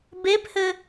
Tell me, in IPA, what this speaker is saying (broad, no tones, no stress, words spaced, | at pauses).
bephɘ